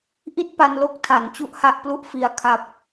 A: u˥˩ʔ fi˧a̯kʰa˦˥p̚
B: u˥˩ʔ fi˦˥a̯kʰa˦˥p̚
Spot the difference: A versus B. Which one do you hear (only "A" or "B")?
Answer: A